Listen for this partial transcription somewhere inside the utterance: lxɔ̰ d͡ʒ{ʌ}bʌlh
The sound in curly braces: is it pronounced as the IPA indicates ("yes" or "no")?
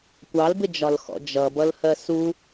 yes